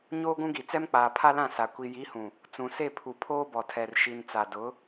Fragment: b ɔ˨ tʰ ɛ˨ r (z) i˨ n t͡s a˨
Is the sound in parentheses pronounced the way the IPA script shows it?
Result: no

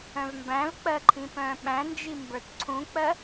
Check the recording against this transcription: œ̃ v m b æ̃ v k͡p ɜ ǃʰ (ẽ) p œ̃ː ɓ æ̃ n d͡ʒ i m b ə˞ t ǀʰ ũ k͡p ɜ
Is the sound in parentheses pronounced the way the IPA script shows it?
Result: no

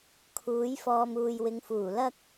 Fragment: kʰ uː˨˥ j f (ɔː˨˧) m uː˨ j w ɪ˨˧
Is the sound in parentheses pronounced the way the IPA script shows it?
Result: no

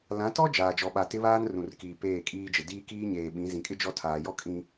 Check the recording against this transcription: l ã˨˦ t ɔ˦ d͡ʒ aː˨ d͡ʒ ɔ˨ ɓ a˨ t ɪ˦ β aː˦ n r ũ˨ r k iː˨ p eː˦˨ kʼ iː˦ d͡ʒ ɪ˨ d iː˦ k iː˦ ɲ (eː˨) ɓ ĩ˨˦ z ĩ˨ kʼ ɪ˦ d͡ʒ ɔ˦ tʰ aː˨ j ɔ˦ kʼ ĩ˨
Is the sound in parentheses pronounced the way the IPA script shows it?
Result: yes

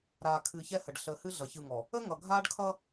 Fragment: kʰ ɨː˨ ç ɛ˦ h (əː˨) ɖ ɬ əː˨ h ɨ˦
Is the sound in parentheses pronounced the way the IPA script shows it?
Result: no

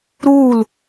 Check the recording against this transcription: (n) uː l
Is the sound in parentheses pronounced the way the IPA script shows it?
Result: no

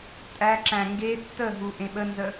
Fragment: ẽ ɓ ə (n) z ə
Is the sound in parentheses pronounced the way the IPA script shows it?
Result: yes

